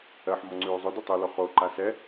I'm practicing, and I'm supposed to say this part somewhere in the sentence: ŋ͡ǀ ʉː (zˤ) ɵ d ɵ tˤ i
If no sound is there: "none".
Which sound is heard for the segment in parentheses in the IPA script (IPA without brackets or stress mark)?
zˤ